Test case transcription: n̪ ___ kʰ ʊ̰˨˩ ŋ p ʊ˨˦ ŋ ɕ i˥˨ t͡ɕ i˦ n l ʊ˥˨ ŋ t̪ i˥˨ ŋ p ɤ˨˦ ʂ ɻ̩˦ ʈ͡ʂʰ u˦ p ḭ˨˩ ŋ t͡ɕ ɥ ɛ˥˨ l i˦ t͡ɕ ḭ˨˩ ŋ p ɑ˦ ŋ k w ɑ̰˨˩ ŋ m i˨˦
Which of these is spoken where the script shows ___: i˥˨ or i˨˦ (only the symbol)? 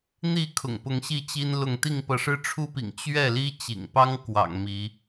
i˥˨